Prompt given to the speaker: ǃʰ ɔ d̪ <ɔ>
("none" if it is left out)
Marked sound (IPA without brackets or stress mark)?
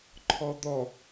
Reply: ɔ